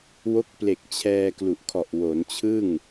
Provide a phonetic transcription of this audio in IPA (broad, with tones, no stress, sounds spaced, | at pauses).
w o˦˥ k̚ p l e˨˩ k̚ t͡ɕʰ ɛː˧ k l u˨˩ ʔ kʰ ɔ˨˩ ʔ w o˩˦ n t͡ɕʰ ɯ˥˩ ŋ